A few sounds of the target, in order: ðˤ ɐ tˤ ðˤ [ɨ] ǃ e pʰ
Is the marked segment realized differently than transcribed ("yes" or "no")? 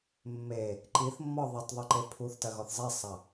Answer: no